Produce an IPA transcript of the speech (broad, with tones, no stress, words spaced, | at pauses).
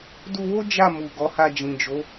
du˧wo˦ d͡ʒa˦˨ mu˨ɡɔ˨˦ha˧ d͡ʒĩ˨d͡ʒo˨˦